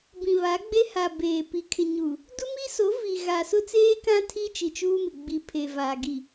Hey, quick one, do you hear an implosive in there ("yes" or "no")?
no